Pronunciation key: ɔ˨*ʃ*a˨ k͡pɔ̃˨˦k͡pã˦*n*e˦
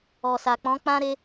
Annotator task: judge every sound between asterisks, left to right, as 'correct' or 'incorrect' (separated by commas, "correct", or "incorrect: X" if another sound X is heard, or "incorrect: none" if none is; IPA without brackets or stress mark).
incorrect: s, incorrect: ɾ